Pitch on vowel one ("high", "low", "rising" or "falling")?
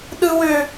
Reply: high